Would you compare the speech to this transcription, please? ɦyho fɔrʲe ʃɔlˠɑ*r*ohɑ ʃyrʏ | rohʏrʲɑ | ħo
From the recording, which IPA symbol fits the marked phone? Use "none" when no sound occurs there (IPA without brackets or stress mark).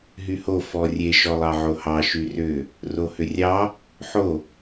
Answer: ʕ